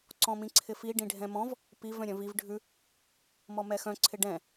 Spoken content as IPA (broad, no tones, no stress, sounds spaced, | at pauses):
ǀ ɔ̃ m ĩ ǀʰ ɪ f i ɖ ĩ ɖʱ ɛ̃ m ɔ̃ v | p i v œ̃ ɾʲ œ̃ v i v ɖʱ ʉ | m ɔ m ɛ x œ̃ ǀʰ ɪ ɖ ɛ̃